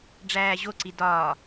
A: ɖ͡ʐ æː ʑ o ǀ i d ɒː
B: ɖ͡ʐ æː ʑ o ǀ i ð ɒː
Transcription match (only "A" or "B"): A